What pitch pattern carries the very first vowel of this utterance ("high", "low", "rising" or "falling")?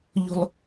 high